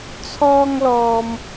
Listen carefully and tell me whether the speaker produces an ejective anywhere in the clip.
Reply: no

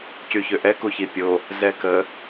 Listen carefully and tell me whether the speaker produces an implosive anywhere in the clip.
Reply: no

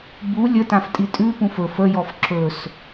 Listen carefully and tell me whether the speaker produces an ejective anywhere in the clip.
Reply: yes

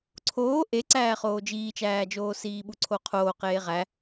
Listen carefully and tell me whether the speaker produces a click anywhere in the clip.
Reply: yes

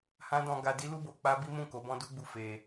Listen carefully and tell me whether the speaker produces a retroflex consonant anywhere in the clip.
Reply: no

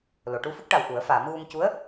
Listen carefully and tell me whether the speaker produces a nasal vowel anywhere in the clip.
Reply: no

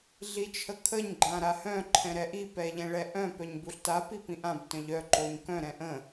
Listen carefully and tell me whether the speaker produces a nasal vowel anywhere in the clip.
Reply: yes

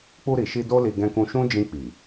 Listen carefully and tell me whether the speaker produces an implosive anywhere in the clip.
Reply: no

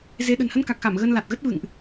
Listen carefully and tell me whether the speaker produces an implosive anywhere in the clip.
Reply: yes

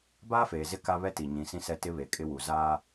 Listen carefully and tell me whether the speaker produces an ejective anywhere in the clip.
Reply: yes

